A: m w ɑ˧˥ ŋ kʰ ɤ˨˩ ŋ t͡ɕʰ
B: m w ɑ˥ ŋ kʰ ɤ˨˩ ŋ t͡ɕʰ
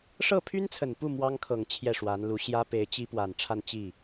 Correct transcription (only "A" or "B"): B